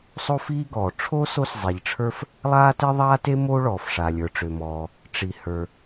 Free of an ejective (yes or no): yes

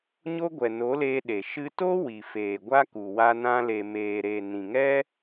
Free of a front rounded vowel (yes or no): yes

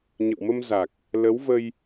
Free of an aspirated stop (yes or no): yes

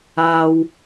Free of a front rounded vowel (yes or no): yes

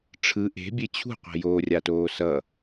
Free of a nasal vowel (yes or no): yes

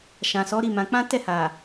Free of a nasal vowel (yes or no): no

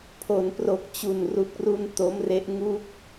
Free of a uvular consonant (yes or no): yes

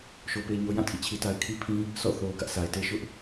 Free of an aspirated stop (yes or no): no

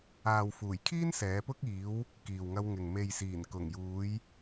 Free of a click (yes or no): yes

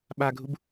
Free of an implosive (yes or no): no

